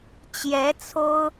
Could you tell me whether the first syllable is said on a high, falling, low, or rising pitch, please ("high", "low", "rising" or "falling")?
rising